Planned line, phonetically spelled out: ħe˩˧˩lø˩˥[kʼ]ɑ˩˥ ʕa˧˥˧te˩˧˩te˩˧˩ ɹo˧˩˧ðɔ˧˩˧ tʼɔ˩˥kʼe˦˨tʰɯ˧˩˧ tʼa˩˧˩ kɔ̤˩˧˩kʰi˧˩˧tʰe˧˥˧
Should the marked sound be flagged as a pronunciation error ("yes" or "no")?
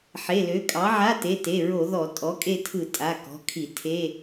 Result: no